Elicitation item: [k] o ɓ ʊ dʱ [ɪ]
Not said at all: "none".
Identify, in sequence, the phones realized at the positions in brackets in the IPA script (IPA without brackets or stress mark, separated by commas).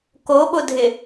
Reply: k, ɪ